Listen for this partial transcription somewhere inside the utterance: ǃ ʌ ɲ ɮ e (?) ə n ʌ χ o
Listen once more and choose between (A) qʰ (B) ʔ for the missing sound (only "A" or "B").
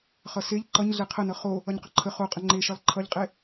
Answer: A